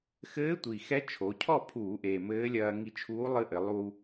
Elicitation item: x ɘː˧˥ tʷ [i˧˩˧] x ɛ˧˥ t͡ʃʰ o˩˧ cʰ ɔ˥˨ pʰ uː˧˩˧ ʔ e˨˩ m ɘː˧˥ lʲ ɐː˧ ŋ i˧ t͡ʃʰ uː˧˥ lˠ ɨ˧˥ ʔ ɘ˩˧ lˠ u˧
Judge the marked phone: incorrect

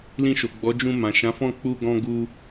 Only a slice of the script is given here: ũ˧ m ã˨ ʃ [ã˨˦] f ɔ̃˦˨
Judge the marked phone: correct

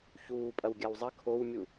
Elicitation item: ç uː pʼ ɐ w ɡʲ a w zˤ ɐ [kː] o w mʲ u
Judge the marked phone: incorrect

